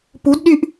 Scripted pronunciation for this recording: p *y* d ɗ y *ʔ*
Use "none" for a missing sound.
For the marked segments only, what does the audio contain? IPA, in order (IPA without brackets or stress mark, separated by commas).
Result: u, ʔ